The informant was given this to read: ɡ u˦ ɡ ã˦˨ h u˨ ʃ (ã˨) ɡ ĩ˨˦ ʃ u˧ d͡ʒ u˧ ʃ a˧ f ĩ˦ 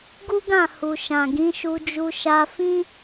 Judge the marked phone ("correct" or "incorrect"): correct